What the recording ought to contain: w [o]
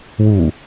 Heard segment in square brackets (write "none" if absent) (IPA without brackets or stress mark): u